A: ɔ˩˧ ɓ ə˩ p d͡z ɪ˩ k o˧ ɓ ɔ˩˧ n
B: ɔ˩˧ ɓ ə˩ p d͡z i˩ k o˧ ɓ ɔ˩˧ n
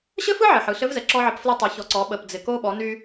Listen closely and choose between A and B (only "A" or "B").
A